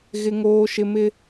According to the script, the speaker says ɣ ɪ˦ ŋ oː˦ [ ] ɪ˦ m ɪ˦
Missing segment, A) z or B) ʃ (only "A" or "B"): B